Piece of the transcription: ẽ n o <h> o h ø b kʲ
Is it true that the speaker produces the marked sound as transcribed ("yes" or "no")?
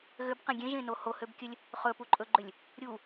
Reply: yes